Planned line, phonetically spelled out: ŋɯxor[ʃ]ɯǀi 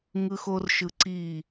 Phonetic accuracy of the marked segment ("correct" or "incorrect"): correct